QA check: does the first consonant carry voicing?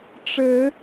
no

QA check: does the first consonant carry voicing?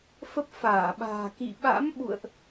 no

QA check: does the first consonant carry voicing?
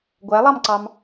yes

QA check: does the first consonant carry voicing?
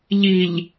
yes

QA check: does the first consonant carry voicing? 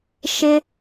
no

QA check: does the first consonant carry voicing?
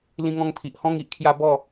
yes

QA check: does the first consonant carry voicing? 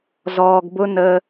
yes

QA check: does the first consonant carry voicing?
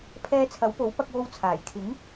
no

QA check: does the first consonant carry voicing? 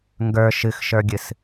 yes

